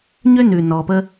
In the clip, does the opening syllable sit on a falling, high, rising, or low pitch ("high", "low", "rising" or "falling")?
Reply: high